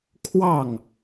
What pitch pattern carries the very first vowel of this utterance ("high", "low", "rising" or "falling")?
falling